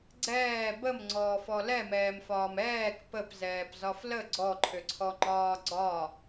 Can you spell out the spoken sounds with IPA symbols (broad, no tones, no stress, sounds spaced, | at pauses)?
ɡ͡ǀ ɛː b ə m ŋ͡ǀ ɔː f ɔ l ɛ m ɛː m f ɒː m ɛː k p ə p z ɛː p z ɒ f l ə ɡ͡ǀ ɔ ǃʰ ʏ ǀʰ ɔ ŋ͡ǃ ɒː ɡ͡ǀ ɒ